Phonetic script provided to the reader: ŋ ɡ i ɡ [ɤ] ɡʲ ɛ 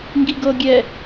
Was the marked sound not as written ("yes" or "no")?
no